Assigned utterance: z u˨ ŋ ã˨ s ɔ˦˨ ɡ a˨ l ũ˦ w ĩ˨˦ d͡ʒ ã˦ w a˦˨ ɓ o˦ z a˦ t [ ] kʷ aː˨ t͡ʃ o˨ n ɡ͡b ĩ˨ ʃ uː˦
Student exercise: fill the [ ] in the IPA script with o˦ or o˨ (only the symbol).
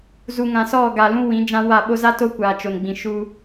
o˦